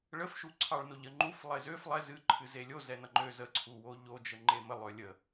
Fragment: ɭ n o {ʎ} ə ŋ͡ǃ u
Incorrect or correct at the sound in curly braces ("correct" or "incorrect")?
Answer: correct